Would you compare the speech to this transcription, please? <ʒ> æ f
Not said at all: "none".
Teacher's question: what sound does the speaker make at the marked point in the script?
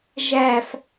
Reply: ʒ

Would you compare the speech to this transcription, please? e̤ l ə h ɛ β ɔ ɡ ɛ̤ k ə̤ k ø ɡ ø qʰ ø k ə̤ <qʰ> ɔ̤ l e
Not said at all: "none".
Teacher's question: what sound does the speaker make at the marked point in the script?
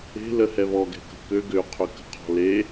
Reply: qʰ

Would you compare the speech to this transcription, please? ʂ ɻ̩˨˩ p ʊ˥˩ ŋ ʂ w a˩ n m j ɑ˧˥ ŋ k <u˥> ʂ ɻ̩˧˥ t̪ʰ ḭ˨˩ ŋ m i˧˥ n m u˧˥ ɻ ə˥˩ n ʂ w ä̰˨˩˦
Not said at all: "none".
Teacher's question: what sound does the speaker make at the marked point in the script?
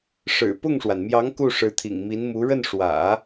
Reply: u˥˩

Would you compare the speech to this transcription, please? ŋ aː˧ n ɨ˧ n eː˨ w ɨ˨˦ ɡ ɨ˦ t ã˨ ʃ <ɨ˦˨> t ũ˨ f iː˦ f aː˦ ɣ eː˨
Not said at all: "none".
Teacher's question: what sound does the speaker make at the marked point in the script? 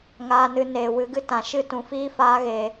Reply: ɨ˦˨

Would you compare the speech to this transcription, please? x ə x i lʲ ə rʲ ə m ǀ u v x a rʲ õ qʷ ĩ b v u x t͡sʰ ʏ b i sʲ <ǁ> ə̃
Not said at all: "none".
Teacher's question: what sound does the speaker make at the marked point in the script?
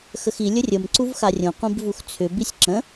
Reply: ǁ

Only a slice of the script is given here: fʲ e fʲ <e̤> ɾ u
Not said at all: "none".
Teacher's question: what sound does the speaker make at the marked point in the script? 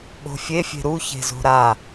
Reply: e̤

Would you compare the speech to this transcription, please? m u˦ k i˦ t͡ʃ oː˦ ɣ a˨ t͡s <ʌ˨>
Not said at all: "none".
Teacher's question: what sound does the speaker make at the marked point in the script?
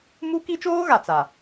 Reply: a˨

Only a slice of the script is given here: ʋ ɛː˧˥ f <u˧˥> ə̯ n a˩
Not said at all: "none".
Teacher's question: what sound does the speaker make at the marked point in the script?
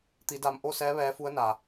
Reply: u˧˥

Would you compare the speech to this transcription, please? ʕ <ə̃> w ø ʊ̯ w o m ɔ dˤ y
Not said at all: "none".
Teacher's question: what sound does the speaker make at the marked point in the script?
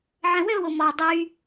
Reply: ə̃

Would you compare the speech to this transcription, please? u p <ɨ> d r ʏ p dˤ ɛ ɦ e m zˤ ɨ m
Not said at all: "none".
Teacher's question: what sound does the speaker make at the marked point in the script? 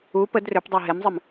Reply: ə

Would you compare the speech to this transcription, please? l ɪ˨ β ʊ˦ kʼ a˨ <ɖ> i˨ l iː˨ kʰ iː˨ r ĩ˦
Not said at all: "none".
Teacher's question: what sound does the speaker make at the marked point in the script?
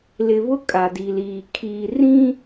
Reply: d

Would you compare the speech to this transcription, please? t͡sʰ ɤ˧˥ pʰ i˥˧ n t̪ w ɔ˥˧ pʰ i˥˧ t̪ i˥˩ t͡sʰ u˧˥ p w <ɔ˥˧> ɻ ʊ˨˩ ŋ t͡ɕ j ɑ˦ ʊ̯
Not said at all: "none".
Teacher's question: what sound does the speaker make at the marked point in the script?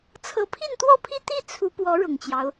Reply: ɔ˧˥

